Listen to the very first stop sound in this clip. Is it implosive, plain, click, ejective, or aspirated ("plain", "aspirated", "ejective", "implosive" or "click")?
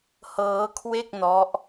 aspirated